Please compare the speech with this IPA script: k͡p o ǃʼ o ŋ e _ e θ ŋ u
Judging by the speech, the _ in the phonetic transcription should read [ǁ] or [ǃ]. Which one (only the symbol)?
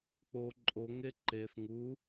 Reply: ǃ